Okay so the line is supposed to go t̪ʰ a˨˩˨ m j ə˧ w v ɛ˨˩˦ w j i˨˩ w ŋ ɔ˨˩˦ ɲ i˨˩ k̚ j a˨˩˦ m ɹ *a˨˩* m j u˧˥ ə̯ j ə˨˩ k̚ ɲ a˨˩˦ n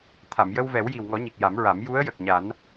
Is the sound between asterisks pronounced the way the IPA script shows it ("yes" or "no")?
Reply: no